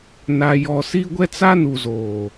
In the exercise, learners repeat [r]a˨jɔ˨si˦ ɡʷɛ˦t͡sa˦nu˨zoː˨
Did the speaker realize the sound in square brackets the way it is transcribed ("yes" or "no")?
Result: no